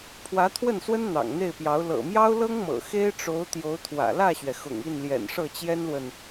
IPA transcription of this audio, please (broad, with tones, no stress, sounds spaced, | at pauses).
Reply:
pʰ w ä˧˥ t̪ʰ w ə˥˩ n s w ə˥ n n̪ ɑ̰˨˩ ŋ n̪ e˥˩ ɪ̯ p j ɑ˧˥ ʊ̯ l ɤ̰˨˩ m j ɑ˥ ʊ̯ l ɤ˥ ŋ m ɤ̰˨˩ x e˥ ɪ̯ ʈ͡ʂ o˧˥ ʊ̯ t̪ j o˧˥ ʊ̯ t̪ʰ w ä̰˨˩ l ä˥˩ ɕ ɥ ɛ˩ x ʊ̰˨˩ ŋ i˥˩ n l j ɛ̰˨˩ n ʂ ɤ˥˩ t͡ɕ j ɛ˥ n l w ə˨ n